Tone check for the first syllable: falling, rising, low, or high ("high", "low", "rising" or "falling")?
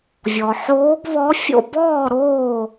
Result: low